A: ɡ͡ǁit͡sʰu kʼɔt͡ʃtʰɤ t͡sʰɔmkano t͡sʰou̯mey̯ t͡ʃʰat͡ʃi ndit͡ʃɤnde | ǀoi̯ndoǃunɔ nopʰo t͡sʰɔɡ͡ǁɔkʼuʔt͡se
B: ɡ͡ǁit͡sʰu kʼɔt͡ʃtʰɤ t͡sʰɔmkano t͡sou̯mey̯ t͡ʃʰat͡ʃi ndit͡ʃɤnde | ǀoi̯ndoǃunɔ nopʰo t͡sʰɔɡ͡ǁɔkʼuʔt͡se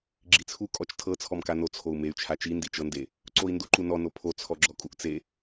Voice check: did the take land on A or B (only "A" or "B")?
A